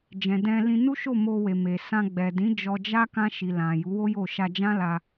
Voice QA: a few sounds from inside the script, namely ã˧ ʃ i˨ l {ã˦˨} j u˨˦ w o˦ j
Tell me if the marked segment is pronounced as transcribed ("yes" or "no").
no